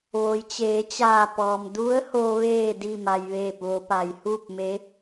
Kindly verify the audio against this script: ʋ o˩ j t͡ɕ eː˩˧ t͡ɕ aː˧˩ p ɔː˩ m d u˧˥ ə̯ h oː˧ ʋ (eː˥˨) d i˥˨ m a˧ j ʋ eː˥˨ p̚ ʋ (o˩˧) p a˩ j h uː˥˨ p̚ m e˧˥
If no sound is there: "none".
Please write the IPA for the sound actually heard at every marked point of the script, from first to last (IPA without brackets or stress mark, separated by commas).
eː˥˨, o˧˥